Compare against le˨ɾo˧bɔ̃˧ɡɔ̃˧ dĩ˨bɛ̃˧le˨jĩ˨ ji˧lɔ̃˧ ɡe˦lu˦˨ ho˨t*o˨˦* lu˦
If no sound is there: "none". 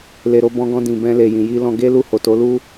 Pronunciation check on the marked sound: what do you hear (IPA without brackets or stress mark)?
o˨˦